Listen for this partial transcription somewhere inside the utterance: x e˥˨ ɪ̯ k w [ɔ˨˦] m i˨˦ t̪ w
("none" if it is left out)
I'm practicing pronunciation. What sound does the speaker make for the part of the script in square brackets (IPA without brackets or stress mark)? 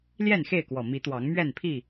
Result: ɔ˨˩